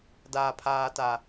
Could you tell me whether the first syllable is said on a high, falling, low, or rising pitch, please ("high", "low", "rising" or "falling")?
low